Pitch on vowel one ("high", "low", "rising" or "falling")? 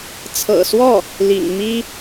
low